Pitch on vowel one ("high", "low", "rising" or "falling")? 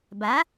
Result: rising